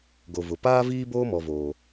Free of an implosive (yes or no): yes